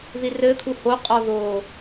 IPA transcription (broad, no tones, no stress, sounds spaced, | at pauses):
ð i r ɘ t̪ʰ u h o qʼ ɔ ð oː